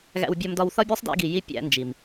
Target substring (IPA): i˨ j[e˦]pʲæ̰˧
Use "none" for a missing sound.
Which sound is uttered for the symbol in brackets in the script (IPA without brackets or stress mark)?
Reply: i˦